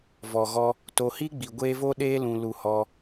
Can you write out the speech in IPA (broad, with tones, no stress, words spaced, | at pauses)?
vɔ˨ɣɔ˧ | to˧hi˦ ɡ͡bi˨ɡʷeː˧ vo˦ɗeː˦lũ˧ lu˧hɔ˧